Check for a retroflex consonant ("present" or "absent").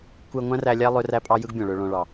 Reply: present